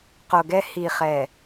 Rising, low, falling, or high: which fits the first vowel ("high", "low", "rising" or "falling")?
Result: low